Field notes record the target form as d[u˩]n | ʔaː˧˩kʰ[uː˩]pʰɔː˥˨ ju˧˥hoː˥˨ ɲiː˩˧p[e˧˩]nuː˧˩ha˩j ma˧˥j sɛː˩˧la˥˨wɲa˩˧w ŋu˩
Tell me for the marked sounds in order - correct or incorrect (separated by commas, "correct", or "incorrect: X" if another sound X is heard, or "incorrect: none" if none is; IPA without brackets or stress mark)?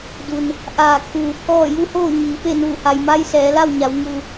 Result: correct, correct, incorrect: e˥˨